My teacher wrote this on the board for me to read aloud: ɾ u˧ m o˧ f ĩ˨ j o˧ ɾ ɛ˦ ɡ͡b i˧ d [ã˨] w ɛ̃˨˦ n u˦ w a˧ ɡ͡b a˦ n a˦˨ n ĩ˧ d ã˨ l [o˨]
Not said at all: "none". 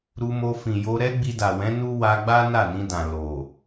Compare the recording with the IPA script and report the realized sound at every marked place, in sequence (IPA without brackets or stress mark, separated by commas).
a˨, o˨